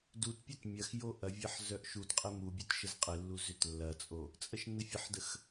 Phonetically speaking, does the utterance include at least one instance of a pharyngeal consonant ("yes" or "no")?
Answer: yes